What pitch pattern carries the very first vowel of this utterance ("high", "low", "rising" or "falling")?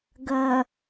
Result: low